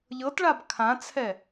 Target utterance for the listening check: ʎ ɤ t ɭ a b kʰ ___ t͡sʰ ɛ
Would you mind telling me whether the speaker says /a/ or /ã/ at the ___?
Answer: ã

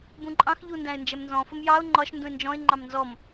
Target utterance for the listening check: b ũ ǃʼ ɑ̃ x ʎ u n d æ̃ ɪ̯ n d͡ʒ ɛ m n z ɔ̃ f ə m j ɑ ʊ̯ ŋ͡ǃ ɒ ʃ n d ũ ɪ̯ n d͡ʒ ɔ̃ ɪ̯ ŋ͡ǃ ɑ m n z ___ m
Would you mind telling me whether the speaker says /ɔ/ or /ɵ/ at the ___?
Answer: ɔ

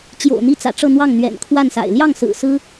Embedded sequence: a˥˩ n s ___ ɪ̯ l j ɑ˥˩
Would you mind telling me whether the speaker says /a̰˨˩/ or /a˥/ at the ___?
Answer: a̰˨˩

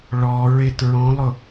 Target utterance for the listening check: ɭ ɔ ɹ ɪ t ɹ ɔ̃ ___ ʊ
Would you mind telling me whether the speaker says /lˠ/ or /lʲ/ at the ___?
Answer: lˠ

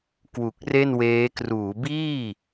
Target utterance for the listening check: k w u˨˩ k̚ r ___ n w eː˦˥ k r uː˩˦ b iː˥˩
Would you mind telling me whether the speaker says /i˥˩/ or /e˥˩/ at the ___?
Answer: e˥˩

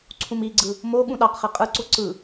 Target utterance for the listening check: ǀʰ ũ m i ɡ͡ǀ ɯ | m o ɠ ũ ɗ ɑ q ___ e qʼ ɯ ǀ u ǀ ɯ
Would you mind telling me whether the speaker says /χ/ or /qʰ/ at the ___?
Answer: χ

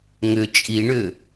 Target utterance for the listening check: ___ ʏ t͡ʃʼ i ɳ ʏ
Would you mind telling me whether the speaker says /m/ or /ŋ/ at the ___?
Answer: ŋ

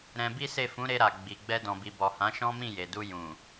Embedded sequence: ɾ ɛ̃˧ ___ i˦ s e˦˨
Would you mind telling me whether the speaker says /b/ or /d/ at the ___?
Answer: b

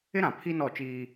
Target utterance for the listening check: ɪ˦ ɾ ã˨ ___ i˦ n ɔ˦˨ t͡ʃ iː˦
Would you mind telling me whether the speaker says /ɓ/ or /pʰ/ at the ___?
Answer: pʰ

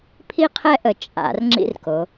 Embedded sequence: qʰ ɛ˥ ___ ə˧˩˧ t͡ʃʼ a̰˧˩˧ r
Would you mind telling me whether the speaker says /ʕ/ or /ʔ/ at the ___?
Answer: ʔ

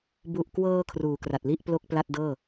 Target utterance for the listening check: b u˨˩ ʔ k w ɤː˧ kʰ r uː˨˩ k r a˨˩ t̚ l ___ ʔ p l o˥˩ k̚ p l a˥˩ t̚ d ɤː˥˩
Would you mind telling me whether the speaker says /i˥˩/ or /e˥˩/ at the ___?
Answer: i˥˩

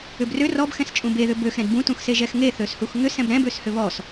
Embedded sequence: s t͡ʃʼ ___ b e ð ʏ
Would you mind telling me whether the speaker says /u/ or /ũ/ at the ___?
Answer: ũ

